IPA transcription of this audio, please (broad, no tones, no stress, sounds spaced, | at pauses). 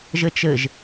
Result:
ʒ ɘ t͡ʃ ɘ ʒ